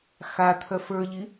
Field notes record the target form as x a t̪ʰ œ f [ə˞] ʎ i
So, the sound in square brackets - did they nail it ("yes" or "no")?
yes